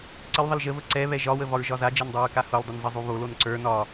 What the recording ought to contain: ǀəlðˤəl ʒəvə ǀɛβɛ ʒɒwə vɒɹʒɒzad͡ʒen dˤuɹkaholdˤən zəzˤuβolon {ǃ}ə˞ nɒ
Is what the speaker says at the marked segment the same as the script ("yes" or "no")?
no